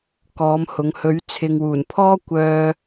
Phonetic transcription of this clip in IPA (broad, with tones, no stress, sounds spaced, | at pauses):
k ɔː˨˧ m h ʊ˨˧ ŋ h ɵ˨˧ ɥ t͡sʰ ɪ˨ ŋ w uː˨˩ n pʰ ɔː˥ kʷ œː˧